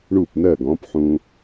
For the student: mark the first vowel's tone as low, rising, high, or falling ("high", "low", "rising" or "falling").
falling